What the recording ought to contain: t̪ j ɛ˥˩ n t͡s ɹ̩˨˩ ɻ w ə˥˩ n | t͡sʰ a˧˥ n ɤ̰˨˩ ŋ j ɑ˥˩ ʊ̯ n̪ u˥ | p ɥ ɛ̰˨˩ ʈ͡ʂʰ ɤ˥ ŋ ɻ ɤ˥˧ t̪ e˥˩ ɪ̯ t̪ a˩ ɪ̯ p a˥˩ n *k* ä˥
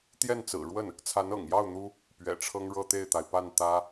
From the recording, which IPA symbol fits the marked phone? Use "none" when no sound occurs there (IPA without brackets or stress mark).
t̪